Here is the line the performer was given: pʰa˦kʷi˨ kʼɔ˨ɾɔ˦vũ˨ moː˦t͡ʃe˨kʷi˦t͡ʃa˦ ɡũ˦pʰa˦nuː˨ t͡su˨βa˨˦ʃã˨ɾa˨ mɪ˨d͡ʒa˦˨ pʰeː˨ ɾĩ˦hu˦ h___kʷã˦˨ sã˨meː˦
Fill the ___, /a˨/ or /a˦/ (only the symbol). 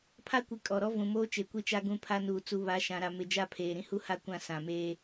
a˦